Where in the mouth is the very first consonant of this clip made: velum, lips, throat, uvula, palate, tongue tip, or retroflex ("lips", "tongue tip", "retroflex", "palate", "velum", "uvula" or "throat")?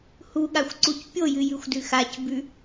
throat